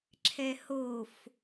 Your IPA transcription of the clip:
ǁʰ ɛ h o f

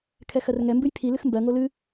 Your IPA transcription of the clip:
kʰ ɛ x ɜ r ŋ ɛ m b ɨ j pʰ i l ɨ x m b ɜ ŋ o l ɨ

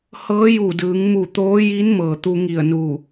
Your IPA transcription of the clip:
h ɤː˧˥ j u˧˩ d ɯː˩˧ ŋ m u˧˩ t̪ oː˧˥ j i˧˥ n m ɤː˩ t̪ u˧ ŋ i˧˩ ə̯ n u˧˩

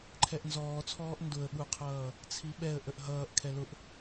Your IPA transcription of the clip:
ǃʰ ɛ ʔ n z ɔː t͡sʰ ɔː ʔ n d ʊ ə̯ ɓ u qʰ ʌː | t͡sʰ i ɓ ɛ ə̯ ʔ ə ʔ ɦ ʌː ʔ kʰ ɛ l ʊ ʔ

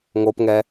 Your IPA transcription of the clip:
ŋ o p ŋ ɛ

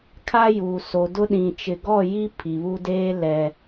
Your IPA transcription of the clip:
kʰ a˦ j uː˨ s o˨ d ʊ˦ ɗ ĩ˨ t͡ʃ ɪ˨ ɡ ɔ˦˨ j i˦ pʰ i˨ β u˦ d eː˦ l ɛ˨

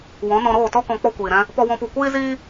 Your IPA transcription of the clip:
w ɔ̃˨˦ n ɔ̃˧ ɾ oː˦˨ t ɔ˦ k ɔ̃˧ k͡p ɔ˧ kʷ iː˨ ɾ ɛ̃˧ | p ɔ˦ w ɔ̃˦ p u˦˨ kʷ iː˦ z iː˦

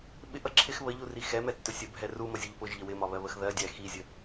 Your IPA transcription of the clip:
ɓ ɪ ʔ ʌ ǁʰ ɪ x β ə ʎ u r i x ɛ m ɛ tː ʊ sʲ ə bʱ ɛ r u m ʌ zʲ ʌ ʎ p ʊ ʒ ʎ ə w ɪ m ɒ β ɜ β ə x ð ɜ dʲ æ x i zʲ ə

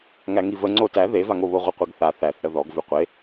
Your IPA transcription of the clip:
ŋ æ ŋ i v ə ŋ͡ǀ o t æ ð e v a ŋ o β o ʁʷ ə qʷ e ɡ θ a θ æ θ ɽ ə ð ɔ ɡ v ʉ qʷ e

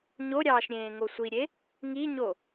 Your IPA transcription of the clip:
ɲ o ɾʲ ɑː ʃ ɾʲ ẽː ŋ o sʷ i ɾʲ e | ŋ i ɲ o

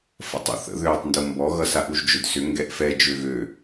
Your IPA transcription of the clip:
f ə̰ tˤ ṵ θ ə̰ ð øː tˤ n d o m b ɔ ɣ ʌ s a ʔ u ʒ d͡ʒ ʏ d s ʏ ŋ ɡ ɛ ʔ f ɛ d͡ʒ ø ɣ ø

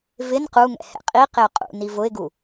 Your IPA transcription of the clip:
v ɪ n q u ŋ ɛ̰ h ɛ̰ qʼ i q ɪ ʊ̯ qʼ ṵ n i v ʊ ɪ̯ ɡ u

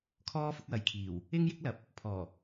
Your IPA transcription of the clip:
kʰ ɔː˥ f ʊ˨˥ k̚ w ɐ˨ j kʰ iː˨˩ w | ɪ˥ ŋ j ɪ˥ k̚ l ɐ˨˥ p̚ | pʰ ɔː˨˩

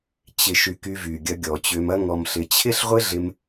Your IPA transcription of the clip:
t͡ɕ ɪ˨ ʃ y˨ k y˧ v y˨ ɡʲ ɐ˧ ɡʲ ɔ˨ t͡ɕ ʏ˧ m ɐ˦ ŋ ɔ˨ m ɬ ɪ˨ t͡ɕʰ ɪ˦ ɬ ʁʷ ɪ˦ ɮ ɪ˧ m

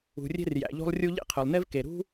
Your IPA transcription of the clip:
ṳ˩ rʲ e̤˥ r j æ̰˩ ʎ o̤˥ lˠ rʲ u˥ ʎ ḛ˥ qʰ ø˩ lˠ n e˥ v k e˩ ɾ ṳ˥

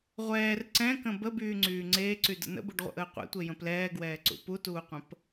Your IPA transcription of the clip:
ʁʷ ɛː r ǀ ɛ̃ k ə̃ b ə b yː ŋ͡ǀ yː ŋ͡ǀ eː ǀ y d ə̰ n ə̰ b u ɖ ʁʷ ə̰ ʔ əː qʷ ɛ̰ tʷ e j ə̃ p l ɛː ɡ w ɛː ǀ ṵ p u t uː qʷ ə̃ p

